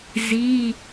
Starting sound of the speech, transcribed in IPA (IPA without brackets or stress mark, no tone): z